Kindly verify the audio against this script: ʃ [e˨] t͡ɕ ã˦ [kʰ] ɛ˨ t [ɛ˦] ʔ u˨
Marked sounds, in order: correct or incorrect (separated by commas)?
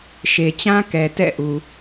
correct, incorrect, incorrect